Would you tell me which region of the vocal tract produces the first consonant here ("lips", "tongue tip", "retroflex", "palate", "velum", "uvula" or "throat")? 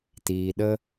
tongue tip